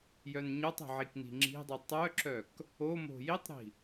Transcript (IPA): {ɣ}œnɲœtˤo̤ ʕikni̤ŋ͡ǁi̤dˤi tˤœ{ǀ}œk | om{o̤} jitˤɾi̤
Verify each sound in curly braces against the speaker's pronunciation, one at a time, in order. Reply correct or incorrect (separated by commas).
incorrect, incorrect, correct